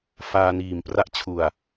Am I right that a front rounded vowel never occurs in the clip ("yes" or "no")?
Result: yes